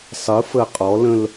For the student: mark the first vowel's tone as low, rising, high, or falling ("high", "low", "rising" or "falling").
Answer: rising